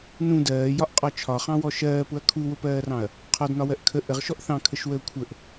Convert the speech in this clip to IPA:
nũ dɜːjɒʔqʼɒ t͡ʃʰɒχɑ̃wɔ ʃɜːpʊɐ̯ kʰuwʊpɜːrɑ̃ɐ̯ | qʰɒdnɒwɜʔ kʰə ʔəʁʃɔʔ θɑ̃kʰəʃwəː kʷʰəʔ

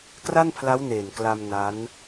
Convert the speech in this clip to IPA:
kra˥˩npʰla˦˥wneː˨˩n kla˧m na˦˥n

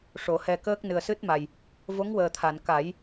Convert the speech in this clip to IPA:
ʂo˨˩˦hɛ˧kəː˦˥k̚ nɨ˨˩ə̯sɨ˦˥t̚ma˨˩j | vo˧˥ŋwəː˨˩t̪ʰa˨˩˨n ka˨˩˦j

